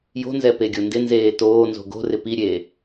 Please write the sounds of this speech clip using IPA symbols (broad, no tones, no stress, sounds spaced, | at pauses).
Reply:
j o̤ n z ɛ p e ɡʲ o n d ɪ n z eː t oː n z o̤ ɡ o̤ r ɪ p i ɾʲ eː